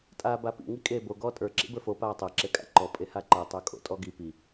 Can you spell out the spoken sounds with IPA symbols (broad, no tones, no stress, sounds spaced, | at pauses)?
tʼ aː b a p ḭ ŋ i kʼ eː b o ɡ ɔː tʼ ə˞ ǁ ḭ b ə˞ f o p aː tˤ ɤ ǁ e kʼ a̰ ǃ ɔ pʼ e h a ǃ ɤ tˤ ə˞ kʼ o̰ tʼ ɔ ɡ i p i